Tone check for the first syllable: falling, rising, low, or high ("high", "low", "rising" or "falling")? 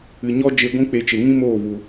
low